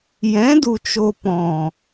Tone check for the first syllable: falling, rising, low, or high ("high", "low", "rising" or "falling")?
rising